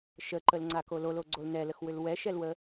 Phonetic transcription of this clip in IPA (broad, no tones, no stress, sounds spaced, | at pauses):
ʃ ə ǃ ə l ŋ͡ǀ a k o l o l o ɡ͡ǀ o l n ɛ l ə x w ʏ l w ɛ ʃ ɛ l w ə